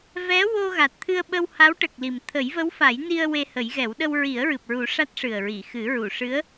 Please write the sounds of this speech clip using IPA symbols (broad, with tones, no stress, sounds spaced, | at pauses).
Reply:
v ɛ˧˥ w o˧ ɣ a˨˩ t̚ t̪ʰ ɨ˧ ə̯ ɓ ə˧ w h a˧˥ w ʈ ə˨˩ k̚ l i˨˩ m t̪ʰ ə˨˩˦ j v ə˧˥ w f a˨˩˦ j n i˧ ə̯ w e˧ h ə˨˩˦ j ɣ ɛ˨˩˦ w ɗ ə˧ w ɹ i˨˩˦ ə̯ ɹ ɨ˨˩ p̚ ɹ u˨˩˦ ʂ a˦˥ t̚ ʂ ɨ˨˩ ə̯ ɹ i˨˩˨ x ɨ˨˩˦ ɹ u˨˩˨ ʂ ɨ˧˥ ə̯